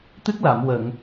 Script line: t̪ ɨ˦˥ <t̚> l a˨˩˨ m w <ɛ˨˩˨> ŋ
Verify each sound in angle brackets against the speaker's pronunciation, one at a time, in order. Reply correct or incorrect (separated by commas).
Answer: incorrect, incorrect